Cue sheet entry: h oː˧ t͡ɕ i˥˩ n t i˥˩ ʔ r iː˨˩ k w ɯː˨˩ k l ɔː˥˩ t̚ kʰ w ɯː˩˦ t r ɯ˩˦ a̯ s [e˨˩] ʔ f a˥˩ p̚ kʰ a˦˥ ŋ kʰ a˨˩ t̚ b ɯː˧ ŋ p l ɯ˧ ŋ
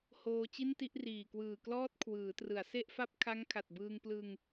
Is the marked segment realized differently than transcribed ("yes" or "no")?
yes